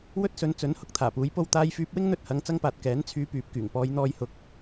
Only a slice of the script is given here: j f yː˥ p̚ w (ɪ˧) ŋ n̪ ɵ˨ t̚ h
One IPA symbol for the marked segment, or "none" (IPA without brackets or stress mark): ɪ˥